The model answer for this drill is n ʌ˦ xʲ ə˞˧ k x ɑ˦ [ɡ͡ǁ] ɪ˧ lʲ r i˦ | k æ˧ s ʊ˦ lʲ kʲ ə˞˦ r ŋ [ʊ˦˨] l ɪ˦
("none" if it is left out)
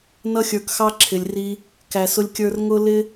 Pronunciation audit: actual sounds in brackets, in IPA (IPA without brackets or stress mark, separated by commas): ǁʰ, ʊ˦